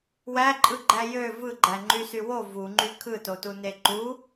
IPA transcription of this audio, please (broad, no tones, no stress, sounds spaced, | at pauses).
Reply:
w æ ǃʼ ɯ ɡ͡ǃ æ j ø v ɯ ɡ͡ǃ æ ŋ͡ǃ y s y w o v u ŋ͡ǃ y kʰ ɯ t o t u n e ǃ u